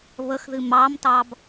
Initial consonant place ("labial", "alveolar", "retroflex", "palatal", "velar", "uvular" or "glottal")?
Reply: labial